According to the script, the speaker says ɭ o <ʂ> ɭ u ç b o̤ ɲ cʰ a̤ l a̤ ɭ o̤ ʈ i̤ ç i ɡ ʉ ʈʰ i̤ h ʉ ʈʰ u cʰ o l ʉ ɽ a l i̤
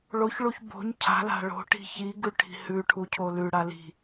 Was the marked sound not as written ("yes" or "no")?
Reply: yes